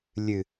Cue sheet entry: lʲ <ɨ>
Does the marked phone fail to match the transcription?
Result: no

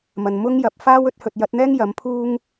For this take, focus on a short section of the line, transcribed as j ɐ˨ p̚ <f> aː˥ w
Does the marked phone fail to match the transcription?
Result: no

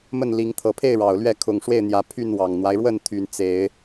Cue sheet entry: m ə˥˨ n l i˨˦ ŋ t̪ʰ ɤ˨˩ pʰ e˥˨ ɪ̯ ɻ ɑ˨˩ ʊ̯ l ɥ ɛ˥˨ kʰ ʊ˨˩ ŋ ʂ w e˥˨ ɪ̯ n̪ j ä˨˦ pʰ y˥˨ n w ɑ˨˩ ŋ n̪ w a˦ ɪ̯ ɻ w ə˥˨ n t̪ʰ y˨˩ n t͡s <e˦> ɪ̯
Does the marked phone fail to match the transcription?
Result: yes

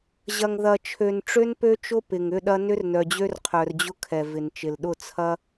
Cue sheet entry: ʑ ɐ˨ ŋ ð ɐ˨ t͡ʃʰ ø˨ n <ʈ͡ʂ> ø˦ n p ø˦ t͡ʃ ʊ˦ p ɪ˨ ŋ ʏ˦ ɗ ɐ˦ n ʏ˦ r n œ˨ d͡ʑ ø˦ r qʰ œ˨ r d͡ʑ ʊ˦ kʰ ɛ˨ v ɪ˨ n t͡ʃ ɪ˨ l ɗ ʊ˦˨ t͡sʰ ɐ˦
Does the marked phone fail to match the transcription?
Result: no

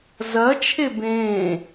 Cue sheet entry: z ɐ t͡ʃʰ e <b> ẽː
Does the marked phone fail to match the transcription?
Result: no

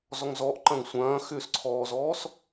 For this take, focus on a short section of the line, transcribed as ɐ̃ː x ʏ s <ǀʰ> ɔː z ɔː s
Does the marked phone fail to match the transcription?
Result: no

